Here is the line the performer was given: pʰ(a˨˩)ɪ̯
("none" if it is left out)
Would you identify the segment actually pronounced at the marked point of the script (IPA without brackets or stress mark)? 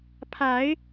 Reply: a˨˦